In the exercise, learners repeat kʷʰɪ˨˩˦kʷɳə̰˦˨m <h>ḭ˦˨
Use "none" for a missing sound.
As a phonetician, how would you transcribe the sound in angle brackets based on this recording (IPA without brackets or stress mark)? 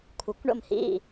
h